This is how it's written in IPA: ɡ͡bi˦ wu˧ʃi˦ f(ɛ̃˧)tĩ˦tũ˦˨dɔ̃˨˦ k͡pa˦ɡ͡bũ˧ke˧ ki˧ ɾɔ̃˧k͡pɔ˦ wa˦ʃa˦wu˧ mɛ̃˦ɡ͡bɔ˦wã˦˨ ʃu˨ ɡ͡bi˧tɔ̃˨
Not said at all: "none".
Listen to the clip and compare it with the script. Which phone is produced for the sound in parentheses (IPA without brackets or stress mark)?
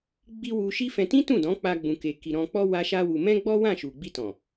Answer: ɛ̃˧